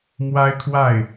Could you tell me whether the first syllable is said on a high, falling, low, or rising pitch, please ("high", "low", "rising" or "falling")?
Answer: high